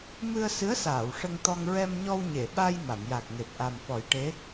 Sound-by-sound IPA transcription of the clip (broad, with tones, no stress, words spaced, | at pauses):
mɨ˧ə̯ sɨ˧˥ə̯saː˨˩˨w ʂə˧ŋt̪ɔ˧ŋ ɹɛ˧mɲɔ˧wɲe˨˩˨ɓa˧j ma˨˩˨mja˨˩k̚ŋe˨˩p̚ ʔa˨˩mfɔ˨˩˦jʈe˧˥